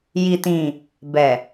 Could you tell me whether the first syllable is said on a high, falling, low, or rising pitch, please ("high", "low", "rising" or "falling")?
low